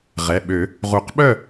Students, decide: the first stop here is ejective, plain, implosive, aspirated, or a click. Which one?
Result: implosive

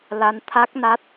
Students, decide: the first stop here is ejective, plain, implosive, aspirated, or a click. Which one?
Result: aspirated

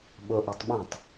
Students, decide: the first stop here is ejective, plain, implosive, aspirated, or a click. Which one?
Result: implosive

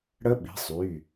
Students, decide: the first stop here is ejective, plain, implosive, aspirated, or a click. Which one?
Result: implosive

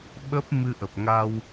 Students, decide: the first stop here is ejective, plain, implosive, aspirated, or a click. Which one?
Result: implosive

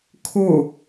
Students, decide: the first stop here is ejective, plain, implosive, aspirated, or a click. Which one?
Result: aspirated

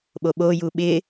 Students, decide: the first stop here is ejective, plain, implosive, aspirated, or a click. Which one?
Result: implosive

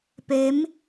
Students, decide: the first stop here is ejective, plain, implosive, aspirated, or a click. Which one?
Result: plain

